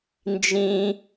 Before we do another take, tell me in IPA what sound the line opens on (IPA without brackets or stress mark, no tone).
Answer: n